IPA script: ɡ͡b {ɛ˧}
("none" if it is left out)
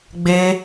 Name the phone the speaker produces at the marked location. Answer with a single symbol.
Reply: e˧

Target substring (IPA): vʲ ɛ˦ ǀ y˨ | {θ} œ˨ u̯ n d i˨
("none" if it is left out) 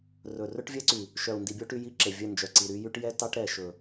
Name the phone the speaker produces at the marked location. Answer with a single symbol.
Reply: ʃ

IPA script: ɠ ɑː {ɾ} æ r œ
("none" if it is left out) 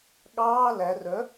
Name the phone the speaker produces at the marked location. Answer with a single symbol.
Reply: l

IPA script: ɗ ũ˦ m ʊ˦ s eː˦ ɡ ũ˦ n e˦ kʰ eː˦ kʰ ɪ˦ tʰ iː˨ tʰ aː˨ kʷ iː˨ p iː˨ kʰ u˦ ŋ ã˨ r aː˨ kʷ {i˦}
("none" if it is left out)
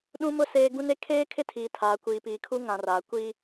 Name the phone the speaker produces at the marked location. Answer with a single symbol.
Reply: i˦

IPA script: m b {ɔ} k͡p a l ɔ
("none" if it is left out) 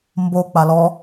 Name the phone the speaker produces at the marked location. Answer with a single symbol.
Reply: o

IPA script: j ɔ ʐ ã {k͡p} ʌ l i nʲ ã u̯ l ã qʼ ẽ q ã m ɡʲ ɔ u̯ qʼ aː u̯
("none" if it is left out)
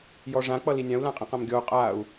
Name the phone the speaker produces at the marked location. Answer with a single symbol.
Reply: k͡p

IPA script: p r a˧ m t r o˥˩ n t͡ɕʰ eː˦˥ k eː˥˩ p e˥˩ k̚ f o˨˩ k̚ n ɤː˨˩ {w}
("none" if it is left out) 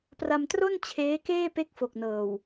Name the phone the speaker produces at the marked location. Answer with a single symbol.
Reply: w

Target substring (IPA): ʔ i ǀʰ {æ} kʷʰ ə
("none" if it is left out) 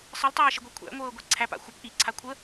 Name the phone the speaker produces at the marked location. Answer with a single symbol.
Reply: a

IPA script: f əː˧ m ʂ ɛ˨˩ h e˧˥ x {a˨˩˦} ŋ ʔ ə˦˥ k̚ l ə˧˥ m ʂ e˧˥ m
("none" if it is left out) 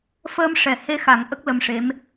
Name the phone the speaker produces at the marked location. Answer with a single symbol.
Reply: a˨˩˦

